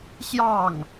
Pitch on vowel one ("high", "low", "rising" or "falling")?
falling